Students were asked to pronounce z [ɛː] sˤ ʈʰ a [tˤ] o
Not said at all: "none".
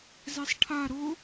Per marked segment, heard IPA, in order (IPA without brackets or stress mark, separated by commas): ɛ, ɾ